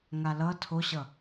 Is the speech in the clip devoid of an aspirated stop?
no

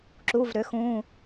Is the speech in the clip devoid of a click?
no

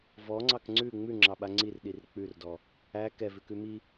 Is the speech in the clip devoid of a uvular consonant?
yes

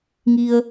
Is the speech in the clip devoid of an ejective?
yes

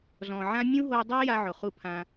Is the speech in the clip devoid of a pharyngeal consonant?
no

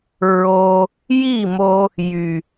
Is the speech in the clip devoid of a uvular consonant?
yes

